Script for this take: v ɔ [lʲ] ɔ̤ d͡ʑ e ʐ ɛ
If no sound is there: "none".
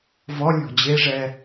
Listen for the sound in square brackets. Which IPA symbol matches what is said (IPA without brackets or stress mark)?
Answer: lʲ